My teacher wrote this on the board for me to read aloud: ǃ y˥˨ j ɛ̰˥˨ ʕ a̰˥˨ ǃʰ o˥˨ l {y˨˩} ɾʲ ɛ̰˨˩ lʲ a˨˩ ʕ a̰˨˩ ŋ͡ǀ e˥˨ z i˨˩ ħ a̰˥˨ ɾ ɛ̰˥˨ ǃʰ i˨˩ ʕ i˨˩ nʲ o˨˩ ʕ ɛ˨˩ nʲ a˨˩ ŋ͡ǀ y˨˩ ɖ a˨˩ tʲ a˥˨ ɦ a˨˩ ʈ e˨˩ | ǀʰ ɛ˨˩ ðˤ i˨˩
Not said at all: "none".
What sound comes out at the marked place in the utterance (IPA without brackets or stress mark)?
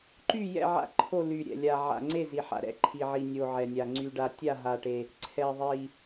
y˨˩